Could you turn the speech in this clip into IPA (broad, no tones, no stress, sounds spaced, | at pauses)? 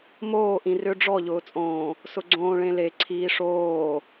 m oː ʔ ĩ r ʏ ɖ͡ʐ ɔ ʎ ʊː t͡sʼ õː | s ʊ ɡ͡ǀ õː ɭ ẽ l e ǀʰ iː ʂ oː